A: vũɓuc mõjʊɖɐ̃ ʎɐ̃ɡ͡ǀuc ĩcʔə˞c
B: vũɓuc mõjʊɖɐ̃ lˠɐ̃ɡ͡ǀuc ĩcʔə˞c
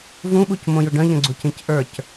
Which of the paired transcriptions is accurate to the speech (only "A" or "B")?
A